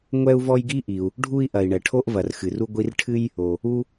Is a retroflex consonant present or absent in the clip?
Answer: present